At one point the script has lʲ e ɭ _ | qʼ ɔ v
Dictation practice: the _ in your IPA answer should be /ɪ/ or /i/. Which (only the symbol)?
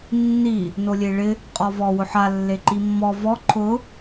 ɪ